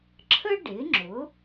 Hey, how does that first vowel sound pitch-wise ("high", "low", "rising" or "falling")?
high